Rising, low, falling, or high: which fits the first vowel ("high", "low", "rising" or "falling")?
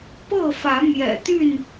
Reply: falling